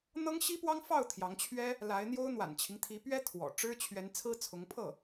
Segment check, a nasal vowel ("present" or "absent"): absent